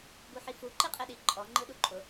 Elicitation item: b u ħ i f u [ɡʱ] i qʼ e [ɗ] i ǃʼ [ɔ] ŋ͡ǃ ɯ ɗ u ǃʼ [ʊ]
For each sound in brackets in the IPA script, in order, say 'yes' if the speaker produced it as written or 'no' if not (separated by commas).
no, yes, yes, yes